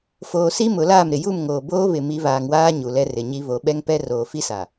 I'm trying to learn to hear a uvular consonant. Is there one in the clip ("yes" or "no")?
no